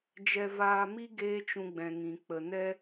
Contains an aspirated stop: no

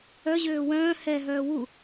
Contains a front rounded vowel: yes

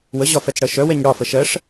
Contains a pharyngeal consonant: no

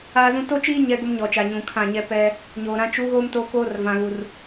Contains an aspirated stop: yes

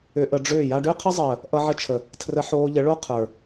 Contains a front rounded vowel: yes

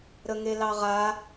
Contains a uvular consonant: yes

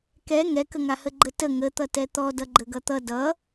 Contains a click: yes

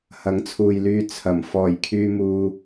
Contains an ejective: no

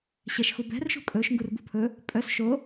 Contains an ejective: yes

